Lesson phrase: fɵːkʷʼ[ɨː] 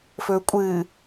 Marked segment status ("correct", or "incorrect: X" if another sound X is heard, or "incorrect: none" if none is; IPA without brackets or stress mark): correct